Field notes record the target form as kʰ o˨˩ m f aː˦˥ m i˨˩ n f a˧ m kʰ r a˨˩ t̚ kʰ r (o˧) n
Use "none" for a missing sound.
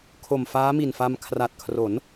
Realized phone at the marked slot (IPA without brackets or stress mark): o˩˦